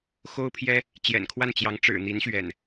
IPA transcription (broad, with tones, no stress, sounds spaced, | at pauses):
x o˦ ʊ̯ pʰ j ɛ˦ | t͡ɕ j ɛ̰˨˩ n kʰ w a˥˨ n t͡ɕ j ɑ˨˦ ŋ ʈ͡ʂ ɻ̩˨˩ n̪ i˨˦ n ɕ ɥ ɛ̰˨˩ n